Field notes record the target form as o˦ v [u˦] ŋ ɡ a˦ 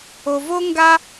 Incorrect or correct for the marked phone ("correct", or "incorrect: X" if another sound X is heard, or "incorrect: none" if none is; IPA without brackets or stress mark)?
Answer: incorrect: o˦